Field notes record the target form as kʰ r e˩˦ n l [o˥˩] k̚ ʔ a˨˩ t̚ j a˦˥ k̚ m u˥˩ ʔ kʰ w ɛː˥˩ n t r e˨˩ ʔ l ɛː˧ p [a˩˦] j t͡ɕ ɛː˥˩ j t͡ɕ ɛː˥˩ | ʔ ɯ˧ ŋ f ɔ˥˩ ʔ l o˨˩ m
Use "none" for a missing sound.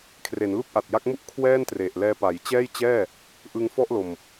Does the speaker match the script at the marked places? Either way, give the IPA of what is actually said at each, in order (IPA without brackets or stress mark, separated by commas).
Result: u˥˩, a˩˦